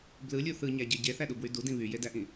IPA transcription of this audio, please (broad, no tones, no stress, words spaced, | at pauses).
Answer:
blɯlʲu θɯɲæɟe ɟeθæɗubwy dudĩ βyjedæʔĩ